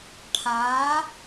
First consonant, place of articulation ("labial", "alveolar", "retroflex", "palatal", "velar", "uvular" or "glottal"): retroflex